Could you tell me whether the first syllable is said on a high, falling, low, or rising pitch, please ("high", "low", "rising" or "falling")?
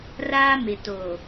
high